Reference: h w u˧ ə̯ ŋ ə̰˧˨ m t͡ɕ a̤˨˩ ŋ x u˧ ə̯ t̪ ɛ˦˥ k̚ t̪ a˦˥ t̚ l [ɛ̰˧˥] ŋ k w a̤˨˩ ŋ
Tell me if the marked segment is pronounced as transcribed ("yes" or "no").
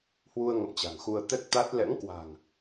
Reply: yes